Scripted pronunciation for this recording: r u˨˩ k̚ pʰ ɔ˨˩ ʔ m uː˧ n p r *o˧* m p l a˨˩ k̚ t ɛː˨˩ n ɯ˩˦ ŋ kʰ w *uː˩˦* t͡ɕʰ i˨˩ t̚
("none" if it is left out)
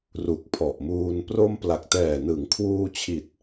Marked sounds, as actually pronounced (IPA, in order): o˧, uː˧

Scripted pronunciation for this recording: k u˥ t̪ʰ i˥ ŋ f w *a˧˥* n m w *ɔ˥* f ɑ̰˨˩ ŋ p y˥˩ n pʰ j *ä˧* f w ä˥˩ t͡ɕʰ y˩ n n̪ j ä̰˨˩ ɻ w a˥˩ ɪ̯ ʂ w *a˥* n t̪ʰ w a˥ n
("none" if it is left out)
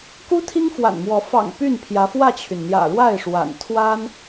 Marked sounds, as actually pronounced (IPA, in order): a̰˨˩, ɔ˧˥, ä˧˥, a̰˨˩

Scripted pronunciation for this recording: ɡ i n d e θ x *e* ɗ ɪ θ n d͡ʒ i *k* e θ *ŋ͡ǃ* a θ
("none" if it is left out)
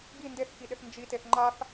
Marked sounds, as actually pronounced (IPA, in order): i, t, ŋ͡ǃ

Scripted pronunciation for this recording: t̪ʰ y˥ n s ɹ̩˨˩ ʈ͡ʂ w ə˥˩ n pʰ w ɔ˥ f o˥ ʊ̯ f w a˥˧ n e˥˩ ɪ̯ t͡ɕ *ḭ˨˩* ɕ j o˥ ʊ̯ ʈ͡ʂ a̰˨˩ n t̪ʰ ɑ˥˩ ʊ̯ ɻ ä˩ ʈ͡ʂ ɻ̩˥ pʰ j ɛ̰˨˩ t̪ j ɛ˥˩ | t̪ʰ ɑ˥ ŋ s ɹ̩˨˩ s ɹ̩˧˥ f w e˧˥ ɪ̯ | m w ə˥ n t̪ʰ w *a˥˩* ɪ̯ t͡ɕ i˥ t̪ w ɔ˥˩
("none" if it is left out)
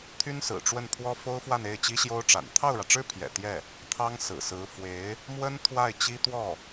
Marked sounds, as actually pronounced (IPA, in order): i˥, a˥˩

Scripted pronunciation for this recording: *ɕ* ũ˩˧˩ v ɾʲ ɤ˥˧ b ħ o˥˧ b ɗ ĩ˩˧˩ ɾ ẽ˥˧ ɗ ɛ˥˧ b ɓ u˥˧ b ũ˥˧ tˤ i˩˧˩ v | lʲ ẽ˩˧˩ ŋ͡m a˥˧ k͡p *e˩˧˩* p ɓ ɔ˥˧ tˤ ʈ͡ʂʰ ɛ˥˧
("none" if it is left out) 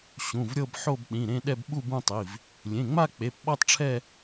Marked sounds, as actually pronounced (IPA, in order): ɕ, e˩˧˩

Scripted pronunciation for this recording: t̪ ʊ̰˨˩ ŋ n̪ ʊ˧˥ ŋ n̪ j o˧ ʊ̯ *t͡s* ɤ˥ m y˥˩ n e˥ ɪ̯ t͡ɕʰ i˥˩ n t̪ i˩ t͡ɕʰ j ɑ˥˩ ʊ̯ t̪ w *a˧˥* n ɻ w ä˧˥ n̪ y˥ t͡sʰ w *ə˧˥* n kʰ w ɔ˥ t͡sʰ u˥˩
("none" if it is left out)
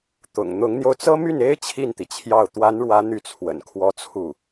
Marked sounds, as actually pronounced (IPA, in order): t͡s, a˧˥, ə̰˨˩

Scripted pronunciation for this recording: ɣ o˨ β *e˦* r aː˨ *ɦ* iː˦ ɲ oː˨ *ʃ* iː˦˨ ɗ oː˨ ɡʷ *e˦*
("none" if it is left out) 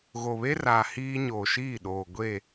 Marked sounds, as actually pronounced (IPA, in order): e˦, h, ʃ, e˦˨

